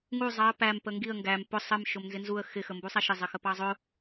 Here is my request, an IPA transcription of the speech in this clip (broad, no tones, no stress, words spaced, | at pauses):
ŋu zˤɑə̯ pæm pəŋɡiə̯ ŋɡæm pʊ sˤəm ʃʊmnzɪnzuə̯ xɪ xəmbusˤæʃɪ zˤɪxəpɑzˤʊ